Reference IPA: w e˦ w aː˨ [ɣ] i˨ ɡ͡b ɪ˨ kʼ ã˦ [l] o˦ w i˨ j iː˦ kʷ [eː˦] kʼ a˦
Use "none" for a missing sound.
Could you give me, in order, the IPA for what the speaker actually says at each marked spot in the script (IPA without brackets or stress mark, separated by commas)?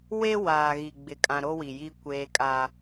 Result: ɣ, ɾ, eː˦